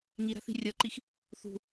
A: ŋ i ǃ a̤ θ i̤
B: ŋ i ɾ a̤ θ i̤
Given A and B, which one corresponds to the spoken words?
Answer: B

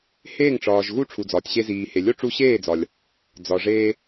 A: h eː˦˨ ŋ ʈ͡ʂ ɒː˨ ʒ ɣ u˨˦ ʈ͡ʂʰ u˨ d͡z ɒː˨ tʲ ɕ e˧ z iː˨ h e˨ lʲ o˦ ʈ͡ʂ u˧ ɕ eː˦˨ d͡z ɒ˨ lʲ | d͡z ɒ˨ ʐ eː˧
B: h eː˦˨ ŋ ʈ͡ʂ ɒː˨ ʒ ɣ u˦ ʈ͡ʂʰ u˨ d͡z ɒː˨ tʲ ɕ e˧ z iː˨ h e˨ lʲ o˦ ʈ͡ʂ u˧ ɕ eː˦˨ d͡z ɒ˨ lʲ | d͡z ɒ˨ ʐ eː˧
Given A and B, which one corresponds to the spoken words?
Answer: B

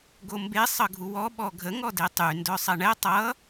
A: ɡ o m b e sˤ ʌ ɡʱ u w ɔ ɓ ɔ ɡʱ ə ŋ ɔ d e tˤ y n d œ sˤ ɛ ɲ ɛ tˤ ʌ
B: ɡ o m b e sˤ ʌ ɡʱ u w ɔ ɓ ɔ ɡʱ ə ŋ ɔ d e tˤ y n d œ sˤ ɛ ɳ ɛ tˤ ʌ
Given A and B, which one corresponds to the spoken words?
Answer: B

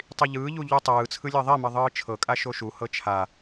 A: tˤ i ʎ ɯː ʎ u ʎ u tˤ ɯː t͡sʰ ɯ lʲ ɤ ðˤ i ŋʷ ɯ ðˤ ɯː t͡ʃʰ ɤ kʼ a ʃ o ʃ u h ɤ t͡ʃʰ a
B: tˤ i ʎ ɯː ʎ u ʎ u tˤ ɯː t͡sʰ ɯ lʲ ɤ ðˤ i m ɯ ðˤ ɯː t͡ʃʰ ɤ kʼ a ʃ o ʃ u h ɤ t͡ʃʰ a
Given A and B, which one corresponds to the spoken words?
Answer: B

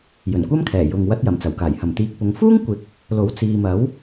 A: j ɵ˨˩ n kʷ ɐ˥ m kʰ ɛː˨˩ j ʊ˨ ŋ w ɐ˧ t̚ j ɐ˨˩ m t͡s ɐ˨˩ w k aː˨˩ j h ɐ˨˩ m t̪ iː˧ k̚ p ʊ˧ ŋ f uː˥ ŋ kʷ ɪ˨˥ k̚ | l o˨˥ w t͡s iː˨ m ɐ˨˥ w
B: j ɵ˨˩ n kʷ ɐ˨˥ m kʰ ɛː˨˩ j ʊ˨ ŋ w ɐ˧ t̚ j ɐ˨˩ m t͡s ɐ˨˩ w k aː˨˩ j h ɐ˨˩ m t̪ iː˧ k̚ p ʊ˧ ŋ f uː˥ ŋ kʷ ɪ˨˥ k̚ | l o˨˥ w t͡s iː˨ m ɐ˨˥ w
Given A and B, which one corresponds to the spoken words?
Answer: A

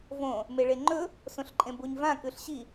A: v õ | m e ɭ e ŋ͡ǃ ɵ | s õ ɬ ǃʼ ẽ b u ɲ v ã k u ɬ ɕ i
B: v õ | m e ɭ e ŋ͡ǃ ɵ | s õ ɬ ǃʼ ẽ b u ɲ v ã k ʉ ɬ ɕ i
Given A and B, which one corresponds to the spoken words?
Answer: B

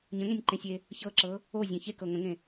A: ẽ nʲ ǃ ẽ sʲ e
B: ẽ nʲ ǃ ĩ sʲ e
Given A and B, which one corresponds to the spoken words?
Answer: A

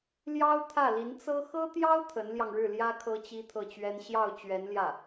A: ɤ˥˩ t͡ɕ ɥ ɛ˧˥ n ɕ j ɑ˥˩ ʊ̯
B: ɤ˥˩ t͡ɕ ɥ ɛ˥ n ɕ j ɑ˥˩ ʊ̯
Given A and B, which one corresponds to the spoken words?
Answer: B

